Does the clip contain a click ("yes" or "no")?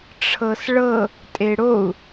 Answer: no